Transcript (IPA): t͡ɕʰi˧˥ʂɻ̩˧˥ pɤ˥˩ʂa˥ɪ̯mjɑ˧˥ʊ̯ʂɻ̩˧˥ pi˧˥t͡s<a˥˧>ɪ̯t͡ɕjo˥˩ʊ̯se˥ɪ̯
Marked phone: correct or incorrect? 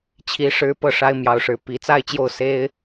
correct